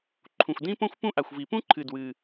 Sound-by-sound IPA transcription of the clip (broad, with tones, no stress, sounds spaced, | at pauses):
ǃʰ ũ˩ xʷ d ĩ˥ p õ˥ xʷ p ũ˥ ʔ a˩ xʷ v i˩ p ũ˥ ǃʰ ɨ˩ d w ɨ˩